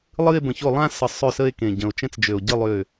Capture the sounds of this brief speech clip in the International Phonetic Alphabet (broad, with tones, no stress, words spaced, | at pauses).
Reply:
lˠɨ˥˧e̯bə̃˨˩ço˥˩ lˠã˥˧sə˨˩ sˤø˥˩sə˥˧e̯kẽ˨˩ ɟə̃˨˩o̯t͡ʃɛ̃˥˧t͡sd͡ʒø˨˩o̯ ɟɨ˥˩ lˠø˥˩